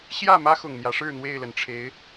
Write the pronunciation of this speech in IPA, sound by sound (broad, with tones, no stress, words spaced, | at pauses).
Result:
ɕjä˥˨ mä˦xʊ˨˩ŋ n̪jä˨˦ʂɻ̩˥˨n̪we˥˨ɪ̯lə˨˩n ʈ͡ʂʰe˨˦ɪ̯